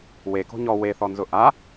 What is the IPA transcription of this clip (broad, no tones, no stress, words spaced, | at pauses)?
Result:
weko̤ ɲɔ weθɔnzʊ ʔa